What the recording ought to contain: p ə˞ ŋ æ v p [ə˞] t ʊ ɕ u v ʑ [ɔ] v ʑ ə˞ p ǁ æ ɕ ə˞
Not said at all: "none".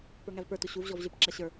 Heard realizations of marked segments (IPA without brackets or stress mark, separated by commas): ə˞, ɔ